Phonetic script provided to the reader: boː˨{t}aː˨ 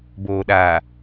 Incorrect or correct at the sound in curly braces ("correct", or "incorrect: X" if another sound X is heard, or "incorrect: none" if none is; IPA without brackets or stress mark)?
incorrect: ɗ